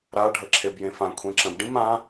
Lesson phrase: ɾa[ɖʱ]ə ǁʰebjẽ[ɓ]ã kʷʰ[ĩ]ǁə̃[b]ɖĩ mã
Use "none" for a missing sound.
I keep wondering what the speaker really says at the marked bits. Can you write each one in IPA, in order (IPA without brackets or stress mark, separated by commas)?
ɖʱ, f, ẽ, b